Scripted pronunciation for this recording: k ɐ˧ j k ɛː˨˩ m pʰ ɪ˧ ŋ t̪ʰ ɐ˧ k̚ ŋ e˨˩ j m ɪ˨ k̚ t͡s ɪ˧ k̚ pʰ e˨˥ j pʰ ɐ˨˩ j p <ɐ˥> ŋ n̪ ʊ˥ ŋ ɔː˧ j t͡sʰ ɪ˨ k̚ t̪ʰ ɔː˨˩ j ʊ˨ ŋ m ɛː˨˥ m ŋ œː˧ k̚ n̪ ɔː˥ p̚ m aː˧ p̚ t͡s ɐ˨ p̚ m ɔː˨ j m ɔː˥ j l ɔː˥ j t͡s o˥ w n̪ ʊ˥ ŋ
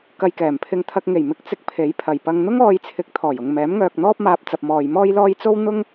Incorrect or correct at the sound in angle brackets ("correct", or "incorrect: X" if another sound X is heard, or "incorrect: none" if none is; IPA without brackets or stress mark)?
incorrect: ɐ˧